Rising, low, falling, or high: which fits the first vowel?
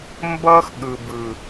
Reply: high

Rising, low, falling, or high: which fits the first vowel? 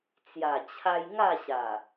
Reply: low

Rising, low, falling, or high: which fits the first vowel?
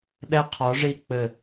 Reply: high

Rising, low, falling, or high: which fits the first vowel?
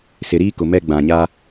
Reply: low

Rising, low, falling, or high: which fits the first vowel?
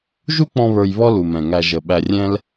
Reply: high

